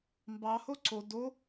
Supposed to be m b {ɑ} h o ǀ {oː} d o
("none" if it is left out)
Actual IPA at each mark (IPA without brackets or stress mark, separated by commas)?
ɑ, o